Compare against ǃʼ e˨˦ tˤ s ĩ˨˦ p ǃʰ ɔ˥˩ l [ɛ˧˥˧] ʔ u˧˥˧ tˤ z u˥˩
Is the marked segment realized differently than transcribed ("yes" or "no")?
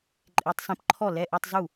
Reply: no